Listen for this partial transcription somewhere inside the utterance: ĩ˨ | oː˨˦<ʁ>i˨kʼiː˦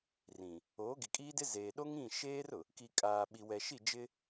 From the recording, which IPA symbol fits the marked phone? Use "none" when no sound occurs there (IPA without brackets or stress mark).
ɡ